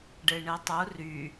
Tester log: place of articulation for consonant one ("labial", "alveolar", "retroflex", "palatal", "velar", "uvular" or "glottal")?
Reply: retroflex